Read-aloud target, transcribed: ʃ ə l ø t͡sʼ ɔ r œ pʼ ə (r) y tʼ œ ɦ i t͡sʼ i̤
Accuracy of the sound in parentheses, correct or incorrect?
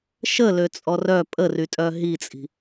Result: correct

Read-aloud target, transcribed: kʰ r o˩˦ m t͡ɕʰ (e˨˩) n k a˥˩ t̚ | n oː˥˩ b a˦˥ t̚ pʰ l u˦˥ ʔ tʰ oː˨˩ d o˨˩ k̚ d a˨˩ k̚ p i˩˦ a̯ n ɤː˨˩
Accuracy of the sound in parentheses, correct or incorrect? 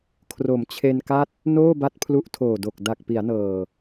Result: incorrect: e˧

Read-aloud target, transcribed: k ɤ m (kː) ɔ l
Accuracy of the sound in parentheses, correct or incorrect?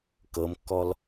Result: correct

